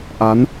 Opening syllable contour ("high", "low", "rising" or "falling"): rising